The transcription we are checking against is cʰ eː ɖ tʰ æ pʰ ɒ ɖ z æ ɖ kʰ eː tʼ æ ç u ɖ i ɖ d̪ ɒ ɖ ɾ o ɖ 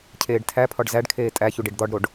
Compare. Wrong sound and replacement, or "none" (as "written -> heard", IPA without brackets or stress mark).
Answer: none